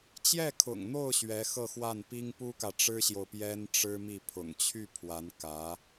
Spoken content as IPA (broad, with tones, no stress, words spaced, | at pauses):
t͡ɕjɛ˥˩kʰʊ̰˨˩ŋn̪o˥˩ʊ̯ ɕɥɛ˧˥xɤ˥˧xwa˥˩npi˥ŋ pu˥kä˨ʈ͡ʂɻ̩˥ɕjo˨ʊ̯ pjɛ˥nʈ͡ʂɻ̩˥ mi˥˩pʰʊ̰˨˩ŋ t͡ɕʰy˥˩ pʰwa˧˥nkä˧˥